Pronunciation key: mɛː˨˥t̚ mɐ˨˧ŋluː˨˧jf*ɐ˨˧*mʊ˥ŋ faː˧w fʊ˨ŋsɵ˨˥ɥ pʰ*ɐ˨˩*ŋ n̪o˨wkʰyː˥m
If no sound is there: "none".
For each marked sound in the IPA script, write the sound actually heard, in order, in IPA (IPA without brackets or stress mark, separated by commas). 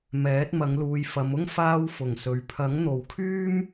ɐ˨˧, ɐ˨˥